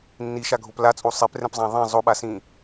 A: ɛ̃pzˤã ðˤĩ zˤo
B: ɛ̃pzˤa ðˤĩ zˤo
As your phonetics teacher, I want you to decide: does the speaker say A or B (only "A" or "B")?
A